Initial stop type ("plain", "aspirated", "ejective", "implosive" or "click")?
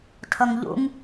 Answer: aspirated